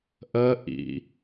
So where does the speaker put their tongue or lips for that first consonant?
throat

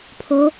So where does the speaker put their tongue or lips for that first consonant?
lips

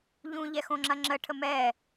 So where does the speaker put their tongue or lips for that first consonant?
palate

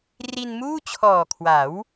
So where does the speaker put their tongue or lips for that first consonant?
tongue tip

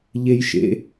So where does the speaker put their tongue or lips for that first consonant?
palate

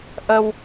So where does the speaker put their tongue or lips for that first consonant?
throat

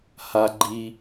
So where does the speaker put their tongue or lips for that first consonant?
throat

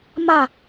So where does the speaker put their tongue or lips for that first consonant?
lips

